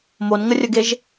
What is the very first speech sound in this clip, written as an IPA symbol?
m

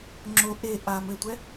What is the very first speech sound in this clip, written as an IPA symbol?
ŋ͡ǁ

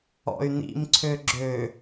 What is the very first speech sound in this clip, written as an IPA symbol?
ɔ̰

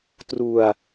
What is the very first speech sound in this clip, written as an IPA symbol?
t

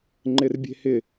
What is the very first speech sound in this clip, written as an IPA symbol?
ŋ͡ǃ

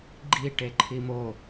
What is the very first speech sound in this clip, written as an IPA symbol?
ɡ͡ǃ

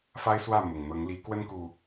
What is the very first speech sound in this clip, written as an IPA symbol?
f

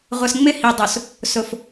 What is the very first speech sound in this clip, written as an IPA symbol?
ʁʷ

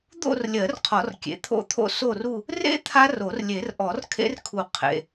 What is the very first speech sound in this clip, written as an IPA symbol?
d̪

